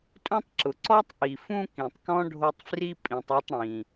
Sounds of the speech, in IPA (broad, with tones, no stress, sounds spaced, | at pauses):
tʼ ũ˦ tˤ ǁ ʊ˩ ǀ ɔ˥ tˤ ʔ i˩ f ũ˦ k ĩ˩ tˤ k ɔ̃˥ ɖʱ o˦ tˤ f r i˥ pʼ ĩ˨ tˤ u˦ tˤ ɽ ĩ˩